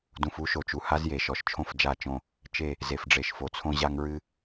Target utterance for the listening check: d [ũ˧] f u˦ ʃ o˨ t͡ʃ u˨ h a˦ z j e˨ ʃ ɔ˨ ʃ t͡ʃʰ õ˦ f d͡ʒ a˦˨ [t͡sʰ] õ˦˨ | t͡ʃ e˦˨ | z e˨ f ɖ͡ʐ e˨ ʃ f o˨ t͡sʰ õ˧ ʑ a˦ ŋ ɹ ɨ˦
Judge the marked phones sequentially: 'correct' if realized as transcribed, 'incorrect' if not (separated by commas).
incorrect, incorrect